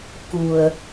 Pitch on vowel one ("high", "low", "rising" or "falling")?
low